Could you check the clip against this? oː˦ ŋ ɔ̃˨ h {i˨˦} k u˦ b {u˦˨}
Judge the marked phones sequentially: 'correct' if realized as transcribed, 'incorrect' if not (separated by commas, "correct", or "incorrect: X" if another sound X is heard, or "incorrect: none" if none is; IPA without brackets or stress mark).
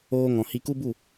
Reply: incorrect: i˧, correct